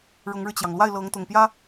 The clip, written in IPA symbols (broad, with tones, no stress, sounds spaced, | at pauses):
ɻ ʊ˧˥ ŋ ɻ ɻ̩˧ t͡ɕ j ɑ˩ ŋ l w a˥˩ ɪ̯ l ɤ˧˥ ŋ t̪ ʊ˨˩ ŋ p j ä˥